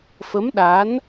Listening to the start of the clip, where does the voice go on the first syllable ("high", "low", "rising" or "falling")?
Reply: rising